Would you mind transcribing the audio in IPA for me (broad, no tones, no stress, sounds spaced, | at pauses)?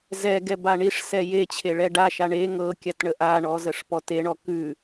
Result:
z ɛ ɡ ɛ b a ɳ i ʂ s ɛ j e t͡ɕʰ e ɭ ɛ ɖ a ʃ a ɳ e ŋ ɤ kʲ a t ɳ ə ʔ a ɳ ɔ z ə ʂ p ɔ t e ɳ ɔ k ʉ